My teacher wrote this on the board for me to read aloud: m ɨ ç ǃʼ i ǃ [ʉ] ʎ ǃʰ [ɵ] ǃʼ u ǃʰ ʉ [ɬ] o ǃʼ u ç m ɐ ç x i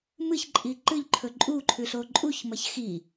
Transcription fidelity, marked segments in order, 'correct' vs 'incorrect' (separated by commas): incorrect, correct, correct